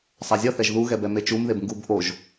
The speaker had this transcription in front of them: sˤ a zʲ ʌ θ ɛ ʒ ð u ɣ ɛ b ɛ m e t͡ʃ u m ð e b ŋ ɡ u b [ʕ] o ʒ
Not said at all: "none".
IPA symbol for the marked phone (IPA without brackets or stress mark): ʔ